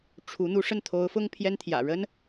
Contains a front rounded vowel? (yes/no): no